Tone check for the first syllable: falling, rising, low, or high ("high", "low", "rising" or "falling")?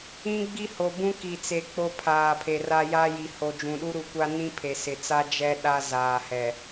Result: high